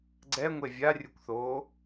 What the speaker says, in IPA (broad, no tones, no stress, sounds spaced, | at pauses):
ɡ͡ǀ ɛ ŋʷ e vʲ a rʲ ɯ kʷ θ oː